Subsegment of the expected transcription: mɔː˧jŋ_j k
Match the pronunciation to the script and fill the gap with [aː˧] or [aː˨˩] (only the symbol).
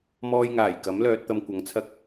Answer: aː˨˩